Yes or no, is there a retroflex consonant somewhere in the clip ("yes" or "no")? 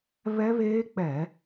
no